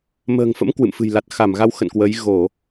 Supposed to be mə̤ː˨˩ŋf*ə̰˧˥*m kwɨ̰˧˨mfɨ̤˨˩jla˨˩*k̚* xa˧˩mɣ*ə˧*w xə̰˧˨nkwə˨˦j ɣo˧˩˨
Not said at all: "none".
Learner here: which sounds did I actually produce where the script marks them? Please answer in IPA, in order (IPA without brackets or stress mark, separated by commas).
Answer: ə̰˧˥, t̚, a˧